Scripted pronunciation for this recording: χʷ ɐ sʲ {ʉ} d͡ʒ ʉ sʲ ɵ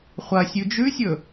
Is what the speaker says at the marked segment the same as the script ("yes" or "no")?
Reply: yes